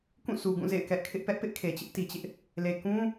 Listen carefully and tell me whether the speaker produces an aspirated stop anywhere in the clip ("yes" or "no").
yes